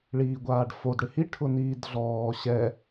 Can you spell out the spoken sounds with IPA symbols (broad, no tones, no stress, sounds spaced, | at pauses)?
ɭ iː ɡʷ aː ɖ f o d ɽ ɪ h i ʈʰ ʊ n iː d ɮ ɔː ɕ ɛ